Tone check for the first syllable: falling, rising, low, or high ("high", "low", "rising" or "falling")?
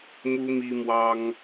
high